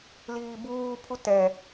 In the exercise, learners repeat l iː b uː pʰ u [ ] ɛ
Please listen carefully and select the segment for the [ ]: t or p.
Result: t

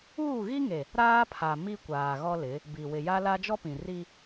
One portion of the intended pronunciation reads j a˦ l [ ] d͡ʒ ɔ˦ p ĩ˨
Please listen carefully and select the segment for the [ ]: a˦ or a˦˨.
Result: a˦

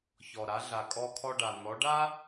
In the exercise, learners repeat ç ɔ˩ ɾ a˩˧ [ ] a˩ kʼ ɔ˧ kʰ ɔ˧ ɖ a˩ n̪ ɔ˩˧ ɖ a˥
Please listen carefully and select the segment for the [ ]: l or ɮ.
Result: ɮ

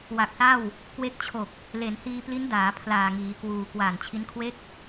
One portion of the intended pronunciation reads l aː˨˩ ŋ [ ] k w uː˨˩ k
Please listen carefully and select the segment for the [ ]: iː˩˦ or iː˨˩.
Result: iː˩˦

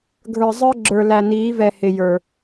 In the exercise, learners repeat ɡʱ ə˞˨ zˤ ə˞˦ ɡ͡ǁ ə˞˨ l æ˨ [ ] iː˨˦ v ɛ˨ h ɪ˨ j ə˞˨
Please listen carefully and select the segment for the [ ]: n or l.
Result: n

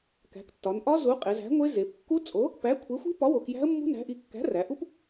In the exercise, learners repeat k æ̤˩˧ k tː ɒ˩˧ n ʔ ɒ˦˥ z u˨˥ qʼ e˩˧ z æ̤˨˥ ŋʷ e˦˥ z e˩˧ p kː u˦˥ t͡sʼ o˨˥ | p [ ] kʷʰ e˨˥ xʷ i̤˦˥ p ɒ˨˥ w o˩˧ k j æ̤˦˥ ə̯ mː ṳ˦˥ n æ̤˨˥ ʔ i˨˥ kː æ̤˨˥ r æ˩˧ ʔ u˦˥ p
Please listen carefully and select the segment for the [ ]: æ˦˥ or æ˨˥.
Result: æ˨˥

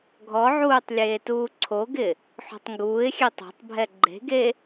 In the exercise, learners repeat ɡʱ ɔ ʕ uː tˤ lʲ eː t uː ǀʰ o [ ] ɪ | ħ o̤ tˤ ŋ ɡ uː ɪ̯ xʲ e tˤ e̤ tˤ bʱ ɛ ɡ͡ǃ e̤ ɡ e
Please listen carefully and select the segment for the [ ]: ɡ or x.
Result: ɡ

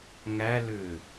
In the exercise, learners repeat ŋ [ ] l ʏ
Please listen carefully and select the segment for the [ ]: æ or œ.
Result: æ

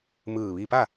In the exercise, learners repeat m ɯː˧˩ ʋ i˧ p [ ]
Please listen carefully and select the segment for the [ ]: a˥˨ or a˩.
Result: a˥˨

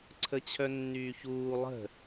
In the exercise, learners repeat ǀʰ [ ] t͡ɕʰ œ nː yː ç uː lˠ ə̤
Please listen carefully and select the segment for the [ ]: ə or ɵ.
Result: ə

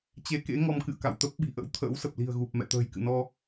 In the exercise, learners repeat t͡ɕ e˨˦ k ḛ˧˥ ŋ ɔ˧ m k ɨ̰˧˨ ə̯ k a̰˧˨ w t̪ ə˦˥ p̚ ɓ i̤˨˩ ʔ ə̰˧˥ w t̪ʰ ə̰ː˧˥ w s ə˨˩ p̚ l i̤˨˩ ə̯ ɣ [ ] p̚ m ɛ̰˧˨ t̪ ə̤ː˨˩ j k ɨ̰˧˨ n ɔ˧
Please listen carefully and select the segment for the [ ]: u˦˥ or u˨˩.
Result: u˨˩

